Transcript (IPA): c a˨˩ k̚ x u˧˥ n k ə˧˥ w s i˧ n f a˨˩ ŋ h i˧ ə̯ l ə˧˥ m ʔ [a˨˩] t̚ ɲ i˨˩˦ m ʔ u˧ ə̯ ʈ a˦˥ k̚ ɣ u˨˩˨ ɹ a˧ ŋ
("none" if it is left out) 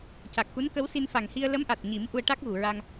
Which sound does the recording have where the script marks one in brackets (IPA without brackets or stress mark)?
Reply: a˨˩